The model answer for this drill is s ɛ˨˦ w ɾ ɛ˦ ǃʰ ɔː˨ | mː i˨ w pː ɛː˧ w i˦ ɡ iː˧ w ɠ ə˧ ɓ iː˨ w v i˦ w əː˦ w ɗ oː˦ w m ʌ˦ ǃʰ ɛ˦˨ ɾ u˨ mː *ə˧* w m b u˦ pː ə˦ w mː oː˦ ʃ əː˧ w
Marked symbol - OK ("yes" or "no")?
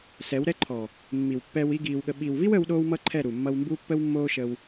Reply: no